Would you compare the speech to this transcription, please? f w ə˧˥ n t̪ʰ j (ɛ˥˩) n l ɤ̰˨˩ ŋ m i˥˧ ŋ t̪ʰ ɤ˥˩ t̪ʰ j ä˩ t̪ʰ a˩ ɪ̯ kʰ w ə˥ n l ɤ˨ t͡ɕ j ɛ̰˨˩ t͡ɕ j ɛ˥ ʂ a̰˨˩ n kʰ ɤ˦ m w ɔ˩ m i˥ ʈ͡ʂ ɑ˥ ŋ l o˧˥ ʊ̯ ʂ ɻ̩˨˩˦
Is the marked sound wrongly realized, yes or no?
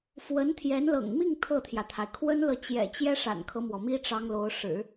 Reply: yes